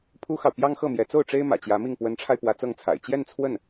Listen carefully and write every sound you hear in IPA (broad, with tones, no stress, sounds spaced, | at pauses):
pʰ u˥ x ɑ˨ ʊ̯ p j ɑ˥ ŋ x ɤ˥˩ m j ɛ˧˥ t͡s o˥˩ ʊ̯ ʈ͡ʂ e˥ ɪ̯ m ä̰˨˩ t͡ɕ j ä˧˥ m i˥˩ ŋ p w ə˧˥ n ʈ͡ʂʰ a˧ ɪ̯ p w ä˧˥ t͡s ɤ˥˩ ŋ t͡sʰ a̰˨˩ ɪ̯ t͡ɕ j ɛ˥˧ n t͡sʰ w ə˥˩ n